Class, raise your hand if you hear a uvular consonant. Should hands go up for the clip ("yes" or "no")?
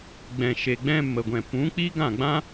no